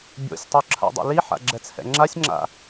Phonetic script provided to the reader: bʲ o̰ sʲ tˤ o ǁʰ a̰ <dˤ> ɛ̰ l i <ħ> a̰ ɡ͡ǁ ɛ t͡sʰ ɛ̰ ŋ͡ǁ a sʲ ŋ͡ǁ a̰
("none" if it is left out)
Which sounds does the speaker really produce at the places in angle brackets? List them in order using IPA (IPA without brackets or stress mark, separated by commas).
dˤ, ħ